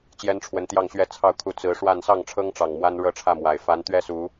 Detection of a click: absent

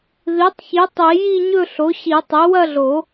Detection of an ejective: absent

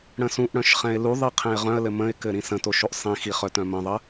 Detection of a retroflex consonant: present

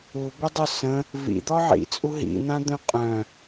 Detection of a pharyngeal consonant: present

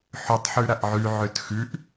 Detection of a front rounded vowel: present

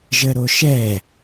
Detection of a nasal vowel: absent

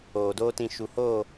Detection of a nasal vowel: present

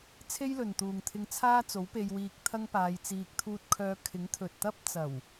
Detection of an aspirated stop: present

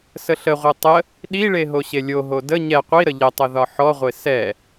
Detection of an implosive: present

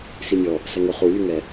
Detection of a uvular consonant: present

